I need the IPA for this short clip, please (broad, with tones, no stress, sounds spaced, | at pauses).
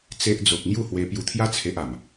t͡s e˦ ʔ d͡z o˦ k̚ ŋ j u˥˧ h w e˧ p j u˧ t̪ʰ j a˦ t͡sʰ e˦ ʔ a˨˩ m